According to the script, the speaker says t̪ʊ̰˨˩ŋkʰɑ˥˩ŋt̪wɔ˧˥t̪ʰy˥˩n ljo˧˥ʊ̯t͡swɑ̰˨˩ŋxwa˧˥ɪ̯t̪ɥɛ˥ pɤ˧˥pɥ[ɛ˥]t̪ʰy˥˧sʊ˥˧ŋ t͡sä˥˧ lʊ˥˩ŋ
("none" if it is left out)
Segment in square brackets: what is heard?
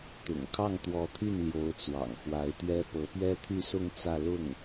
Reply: ɛ˥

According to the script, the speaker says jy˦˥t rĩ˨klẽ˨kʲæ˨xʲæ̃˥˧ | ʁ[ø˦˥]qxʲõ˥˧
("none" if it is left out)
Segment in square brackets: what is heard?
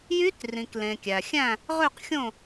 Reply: ø˥˧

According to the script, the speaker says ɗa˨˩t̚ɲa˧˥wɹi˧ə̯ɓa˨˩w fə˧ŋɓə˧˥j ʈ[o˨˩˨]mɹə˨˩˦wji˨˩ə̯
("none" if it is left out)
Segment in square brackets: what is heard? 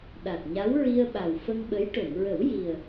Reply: o˨˩˨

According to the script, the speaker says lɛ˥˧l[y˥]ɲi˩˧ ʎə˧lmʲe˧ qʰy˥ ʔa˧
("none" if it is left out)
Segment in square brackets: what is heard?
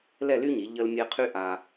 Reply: y˥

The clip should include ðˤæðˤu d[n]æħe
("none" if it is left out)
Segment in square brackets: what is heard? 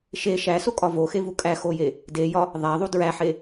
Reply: ɹ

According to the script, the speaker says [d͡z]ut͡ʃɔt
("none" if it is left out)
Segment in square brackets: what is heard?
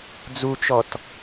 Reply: d͡z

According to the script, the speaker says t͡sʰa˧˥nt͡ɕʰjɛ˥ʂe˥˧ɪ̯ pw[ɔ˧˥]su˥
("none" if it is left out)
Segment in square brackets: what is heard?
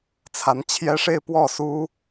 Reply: ɔ˥˩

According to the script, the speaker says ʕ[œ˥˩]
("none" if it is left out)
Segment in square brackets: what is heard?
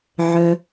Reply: œ˩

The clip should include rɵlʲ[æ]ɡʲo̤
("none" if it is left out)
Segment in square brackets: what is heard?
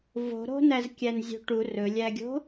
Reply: æ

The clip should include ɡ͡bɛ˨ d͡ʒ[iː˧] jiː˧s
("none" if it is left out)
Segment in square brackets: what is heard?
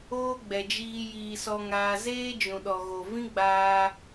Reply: iː˧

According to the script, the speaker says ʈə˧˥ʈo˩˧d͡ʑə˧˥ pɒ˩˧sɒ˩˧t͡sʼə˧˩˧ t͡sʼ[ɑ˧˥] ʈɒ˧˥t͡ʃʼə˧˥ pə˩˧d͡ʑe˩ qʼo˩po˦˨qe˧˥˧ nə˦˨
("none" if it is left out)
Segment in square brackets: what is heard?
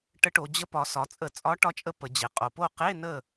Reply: ɒ˧˥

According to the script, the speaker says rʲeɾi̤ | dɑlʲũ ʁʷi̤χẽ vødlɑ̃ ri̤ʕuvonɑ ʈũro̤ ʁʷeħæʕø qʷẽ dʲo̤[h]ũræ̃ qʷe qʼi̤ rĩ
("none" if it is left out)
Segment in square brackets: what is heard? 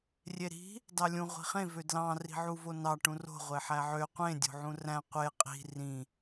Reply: ʕ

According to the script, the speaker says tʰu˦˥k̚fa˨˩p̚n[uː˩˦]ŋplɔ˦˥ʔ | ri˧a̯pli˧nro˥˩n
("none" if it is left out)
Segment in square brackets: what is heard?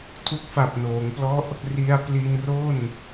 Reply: oː˩˦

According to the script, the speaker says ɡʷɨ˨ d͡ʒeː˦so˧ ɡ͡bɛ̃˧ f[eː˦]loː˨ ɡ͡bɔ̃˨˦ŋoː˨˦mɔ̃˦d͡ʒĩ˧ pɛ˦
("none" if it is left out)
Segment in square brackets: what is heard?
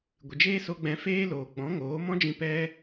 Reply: eː˦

